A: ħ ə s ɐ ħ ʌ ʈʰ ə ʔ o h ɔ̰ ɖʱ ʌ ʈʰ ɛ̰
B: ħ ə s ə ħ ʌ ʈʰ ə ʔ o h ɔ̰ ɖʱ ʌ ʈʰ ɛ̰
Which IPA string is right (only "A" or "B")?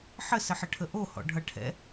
B